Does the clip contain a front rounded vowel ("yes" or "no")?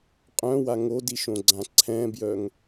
yes